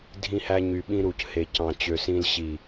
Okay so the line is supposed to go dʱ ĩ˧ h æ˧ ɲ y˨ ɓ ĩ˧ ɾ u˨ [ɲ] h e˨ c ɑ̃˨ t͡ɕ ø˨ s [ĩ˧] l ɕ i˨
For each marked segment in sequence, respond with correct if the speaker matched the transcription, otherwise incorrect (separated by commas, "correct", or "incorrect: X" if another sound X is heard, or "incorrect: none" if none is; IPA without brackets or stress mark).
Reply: incorrect: c, correct